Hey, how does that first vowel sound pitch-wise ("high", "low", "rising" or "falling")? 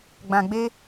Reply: low